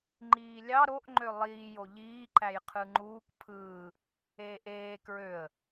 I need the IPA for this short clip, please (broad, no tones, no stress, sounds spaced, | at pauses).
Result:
ŋ͡ǃ iː lʲ ɑ ɾ o ʔ ŋ͡ǃ ø lˠ iː j o ʎ iː ǃ æ j qʰ ɯ ŋ͡ǃ uː k pʰ ɯː | eː ʔ eː k ɹ ø ə̯